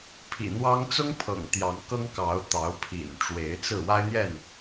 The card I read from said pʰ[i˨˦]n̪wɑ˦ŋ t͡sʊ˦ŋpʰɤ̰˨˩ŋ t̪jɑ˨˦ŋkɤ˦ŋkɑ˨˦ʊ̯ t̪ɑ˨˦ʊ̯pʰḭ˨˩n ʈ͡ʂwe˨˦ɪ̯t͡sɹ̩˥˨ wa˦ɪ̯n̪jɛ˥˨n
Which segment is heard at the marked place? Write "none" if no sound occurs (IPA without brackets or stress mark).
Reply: ḭ˨˩